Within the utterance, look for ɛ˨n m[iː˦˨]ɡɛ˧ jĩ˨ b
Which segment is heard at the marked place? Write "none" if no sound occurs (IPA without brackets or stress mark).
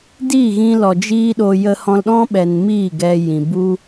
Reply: iː˦˨